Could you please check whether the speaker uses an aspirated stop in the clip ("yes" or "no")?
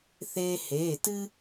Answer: no